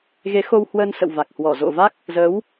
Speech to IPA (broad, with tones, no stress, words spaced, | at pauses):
ɣe˨˦xo˧whwəː˧nsə̰˧˨w va˨˩k̚hwɔ˧˩zo̰˧˨va˦˥k̚ | zə˨˦w